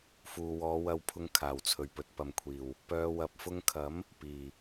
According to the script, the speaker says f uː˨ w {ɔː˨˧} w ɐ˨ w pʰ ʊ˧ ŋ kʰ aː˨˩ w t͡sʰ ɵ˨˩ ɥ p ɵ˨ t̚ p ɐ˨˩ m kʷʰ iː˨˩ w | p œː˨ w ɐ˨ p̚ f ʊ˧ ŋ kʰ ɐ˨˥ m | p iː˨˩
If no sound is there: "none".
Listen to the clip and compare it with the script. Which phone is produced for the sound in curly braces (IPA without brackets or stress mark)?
ɔː˨˧